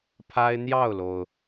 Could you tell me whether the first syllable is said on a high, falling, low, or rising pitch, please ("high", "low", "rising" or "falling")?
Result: high